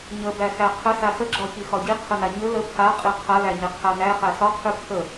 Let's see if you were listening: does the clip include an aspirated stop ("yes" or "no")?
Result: yes